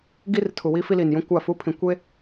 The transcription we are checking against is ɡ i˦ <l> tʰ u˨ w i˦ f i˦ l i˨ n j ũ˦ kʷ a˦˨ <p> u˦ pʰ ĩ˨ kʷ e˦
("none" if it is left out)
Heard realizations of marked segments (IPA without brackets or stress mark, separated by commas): r, f